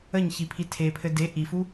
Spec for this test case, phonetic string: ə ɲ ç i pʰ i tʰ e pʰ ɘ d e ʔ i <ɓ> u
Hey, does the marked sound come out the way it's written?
no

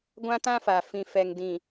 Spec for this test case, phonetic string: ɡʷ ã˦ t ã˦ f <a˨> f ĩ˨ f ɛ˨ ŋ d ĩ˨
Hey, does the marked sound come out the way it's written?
yes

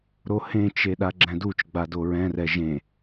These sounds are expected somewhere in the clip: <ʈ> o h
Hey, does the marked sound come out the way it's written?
no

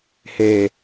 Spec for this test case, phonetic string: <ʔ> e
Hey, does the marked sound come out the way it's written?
no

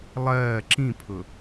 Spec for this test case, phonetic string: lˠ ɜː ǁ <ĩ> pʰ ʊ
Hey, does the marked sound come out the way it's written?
yes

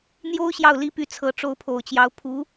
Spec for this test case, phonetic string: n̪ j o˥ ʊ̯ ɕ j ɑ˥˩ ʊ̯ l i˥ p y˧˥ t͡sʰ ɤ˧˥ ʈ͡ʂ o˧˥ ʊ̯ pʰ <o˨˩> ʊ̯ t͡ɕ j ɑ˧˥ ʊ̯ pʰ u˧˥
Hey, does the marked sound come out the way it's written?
yes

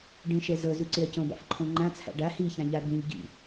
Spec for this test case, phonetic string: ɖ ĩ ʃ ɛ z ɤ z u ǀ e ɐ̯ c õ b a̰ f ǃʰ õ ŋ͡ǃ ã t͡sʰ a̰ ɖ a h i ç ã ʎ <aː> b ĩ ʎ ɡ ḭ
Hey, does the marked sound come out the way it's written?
no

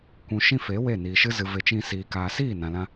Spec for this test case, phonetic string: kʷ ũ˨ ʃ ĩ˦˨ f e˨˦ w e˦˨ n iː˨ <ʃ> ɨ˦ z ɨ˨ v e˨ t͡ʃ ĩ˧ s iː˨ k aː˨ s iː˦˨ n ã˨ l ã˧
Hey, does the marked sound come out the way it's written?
yes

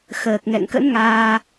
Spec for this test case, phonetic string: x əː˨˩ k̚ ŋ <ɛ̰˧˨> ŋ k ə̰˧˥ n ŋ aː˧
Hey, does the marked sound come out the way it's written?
yes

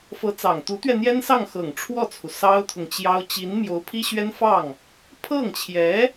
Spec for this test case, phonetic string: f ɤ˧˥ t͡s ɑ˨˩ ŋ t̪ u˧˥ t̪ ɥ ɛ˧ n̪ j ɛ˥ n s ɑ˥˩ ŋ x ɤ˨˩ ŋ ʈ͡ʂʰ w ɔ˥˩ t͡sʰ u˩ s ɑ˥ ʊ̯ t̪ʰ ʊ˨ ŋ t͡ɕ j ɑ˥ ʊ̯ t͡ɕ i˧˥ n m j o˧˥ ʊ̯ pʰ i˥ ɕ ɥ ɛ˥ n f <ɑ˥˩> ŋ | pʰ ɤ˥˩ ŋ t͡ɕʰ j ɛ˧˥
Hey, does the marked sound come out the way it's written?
yes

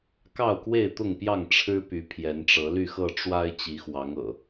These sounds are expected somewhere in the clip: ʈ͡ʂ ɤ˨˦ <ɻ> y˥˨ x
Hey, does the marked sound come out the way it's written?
no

